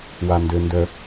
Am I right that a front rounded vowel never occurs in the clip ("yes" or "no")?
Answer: no